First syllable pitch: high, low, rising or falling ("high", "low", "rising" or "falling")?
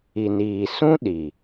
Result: low